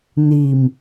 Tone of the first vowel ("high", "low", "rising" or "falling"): low